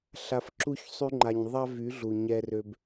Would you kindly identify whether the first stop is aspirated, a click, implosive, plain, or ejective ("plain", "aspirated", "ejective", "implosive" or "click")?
click